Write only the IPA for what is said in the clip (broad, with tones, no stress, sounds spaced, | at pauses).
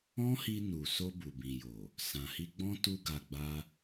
ɔ̃˦ h i˧ n u˨ s o˧ b u˨ b ĩ˨ j o˨ | s ã˨ h i˧ ɡ͡b ɔ̃˦ t u˦ ɡ a˧ ɡ͡b a˦